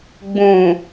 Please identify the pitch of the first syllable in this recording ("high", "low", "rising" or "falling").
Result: low